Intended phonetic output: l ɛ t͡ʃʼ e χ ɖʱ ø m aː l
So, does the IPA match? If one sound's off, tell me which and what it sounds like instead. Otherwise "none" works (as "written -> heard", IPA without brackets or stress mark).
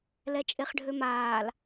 none